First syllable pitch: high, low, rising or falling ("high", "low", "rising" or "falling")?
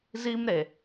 high